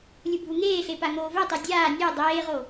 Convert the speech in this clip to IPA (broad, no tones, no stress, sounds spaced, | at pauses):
lʲ u bʱ u ŋ eː ɬ e p a ŋ oː v ɛ tˤ e dʲ aː nʲ ɛ dˤ eː ʁ o